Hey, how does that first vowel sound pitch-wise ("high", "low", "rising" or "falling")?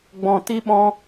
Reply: low